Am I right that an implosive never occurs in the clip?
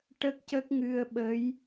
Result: no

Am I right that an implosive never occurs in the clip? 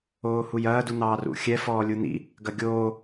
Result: yes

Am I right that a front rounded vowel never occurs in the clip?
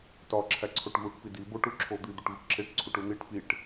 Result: yes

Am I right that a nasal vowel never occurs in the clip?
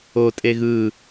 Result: yes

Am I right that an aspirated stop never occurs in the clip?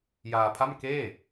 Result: no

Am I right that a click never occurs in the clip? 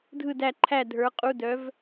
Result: no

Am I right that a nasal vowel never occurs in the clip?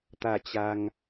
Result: yes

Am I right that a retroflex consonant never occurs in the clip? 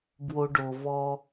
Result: no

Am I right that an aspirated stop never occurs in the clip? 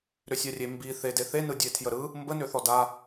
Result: no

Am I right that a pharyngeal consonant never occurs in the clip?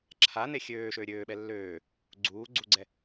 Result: yes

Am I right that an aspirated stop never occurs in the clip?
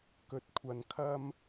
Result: no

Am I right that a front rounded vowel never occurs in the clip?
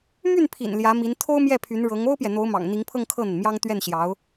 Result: no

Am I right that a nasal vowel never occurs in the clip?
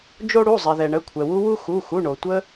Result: yes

